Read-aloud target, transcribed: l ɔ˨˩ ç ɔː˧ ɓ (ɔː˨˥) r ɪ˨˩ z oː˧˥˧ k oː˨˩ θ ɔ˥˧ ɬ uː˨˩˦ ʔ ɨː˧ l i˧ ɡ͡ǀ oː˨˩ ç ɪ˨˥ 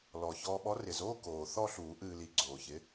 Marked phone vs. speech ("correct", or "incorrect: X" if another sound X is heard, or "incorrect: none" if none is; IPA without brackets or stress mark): incorrect: ɔ˨˥